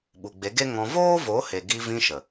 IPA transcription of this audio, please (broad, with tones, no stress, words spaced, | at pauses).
ɓu˨ɡ͡be˨˦ɡe˦ ŋɔ̃˧ voː˦vo˨˦he˨ ɡi˧vĩ˧ʃə˨